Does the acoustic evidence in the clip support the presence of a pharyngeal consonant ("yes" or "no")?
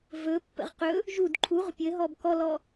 no